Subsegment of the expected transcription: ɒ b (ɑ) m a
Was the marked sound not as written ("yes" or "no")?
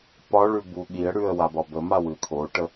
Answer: yes